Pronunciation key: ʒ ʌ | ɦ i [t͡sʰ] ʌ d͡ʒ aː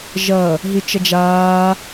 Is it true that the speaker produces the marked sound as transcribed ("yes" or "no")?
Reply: no